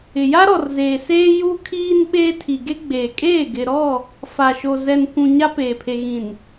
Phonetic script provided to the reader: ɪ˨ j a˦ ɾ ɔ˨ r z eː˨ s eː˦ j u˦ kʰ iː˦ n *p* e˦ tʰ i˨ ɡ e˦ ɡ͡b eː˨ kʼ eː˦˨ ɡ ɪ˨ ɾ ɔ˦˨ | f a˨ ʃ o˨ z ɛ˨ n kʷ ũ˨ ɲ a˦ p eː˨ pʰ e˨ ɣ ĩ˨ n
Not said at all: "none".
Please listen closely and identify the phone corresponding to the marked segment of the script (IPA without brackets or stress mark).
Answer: ɓ